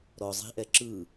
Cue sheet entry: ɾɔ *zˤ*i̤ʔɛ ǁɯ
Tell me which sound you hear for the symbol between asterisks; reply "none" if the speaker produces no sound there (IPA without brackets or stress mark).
zˤ